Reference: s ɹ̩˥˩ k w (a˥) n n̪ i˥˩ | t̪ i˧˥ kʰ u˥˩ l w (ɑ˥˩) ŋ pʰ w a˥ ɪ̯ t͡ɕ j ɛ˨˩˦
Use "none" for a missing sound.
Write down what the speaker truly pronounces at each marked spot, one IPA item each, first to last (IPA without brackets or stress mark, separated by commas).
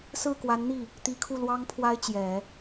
a˧˥, ɑ˥